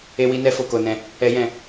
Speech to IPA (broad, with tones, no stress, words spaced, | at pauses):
e˦wi˦nɛ˦ fo˧ko˧nɛ̃˧ | ɛ˦jɛ̃˦˨